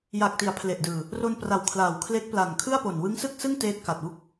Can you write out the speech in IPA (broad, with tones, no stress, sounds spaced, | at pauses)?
j a˨˩ k̚ t i˩˦ a̯ pʰ l e˨˩ ʔ d ɯː˨˩ | r o˧ n p r a˨˩ w kʰ l aː˨˩ w kʰ l eː˦˥ k̚ p l a˨˩ n kʰ ɯ˥˩ a̯ p o˨˩ n w ɯ˦˥ ŋ s ɯ˥˩ k̚ s ɯ˥˩ ŋ t eː˦˥ t̚ k a˨˩ t̚ w u˥˩ k̚